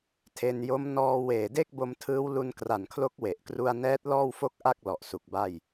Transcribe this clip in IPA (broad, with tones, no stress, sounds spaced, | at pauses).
tʰ e˧ n j o˦˥ m n ɔː˧ w eː˨˩ d e˥˩ k̚ b o˧ m tʰ ɯː˦˥ w l u˧ n k r a˨˩ n kʰ l o˦˥ k̚ w e˨˩ ʔ k r u˧ a̯ n ɛː˦˥ t̚ l ɔː˥˩ w f o˥˩ k̚ ʔ a˥˩ k̚ l ɔ˨˩ ʔ s u˨˩ k̚ b a˥˩ j